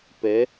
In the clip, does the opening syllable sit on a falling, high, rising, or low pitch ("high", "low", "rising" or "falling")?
rising